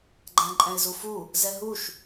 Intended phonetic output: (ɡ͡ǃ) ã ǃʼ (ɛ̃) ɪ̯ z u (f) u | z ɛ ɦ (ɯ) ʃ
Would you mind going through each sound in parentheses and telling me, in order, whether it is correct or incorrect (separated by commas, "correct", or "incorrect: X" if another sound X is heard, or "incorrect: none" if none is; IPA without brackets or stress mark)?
correct, correct, correct, incorrect: u